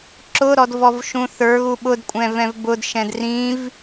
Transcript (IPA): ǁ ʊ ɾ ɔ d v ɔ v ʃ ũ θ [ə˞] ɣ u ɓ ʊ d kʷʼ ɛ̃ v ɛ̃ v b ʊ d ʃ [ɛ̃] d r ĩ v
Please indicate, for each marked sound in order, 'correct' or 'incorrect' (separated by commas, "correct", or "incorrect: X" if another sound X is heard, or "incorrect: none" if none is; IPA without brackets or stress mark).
correct, correct